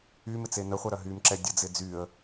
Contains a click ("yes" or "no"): yes